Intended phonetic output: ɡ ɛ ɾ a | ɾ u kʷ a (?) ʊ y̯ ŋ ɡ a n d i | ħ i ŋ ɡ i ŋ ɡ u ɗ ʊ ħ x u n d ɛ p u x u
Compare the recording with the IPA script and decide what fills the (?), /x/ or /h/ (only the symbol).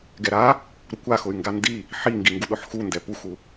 x